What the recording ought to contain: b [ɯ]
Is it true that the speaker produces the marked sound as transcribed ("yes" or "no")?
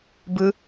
yes